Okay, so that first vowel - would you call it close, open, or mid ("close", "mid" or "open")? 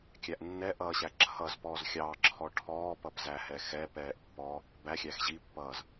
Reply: open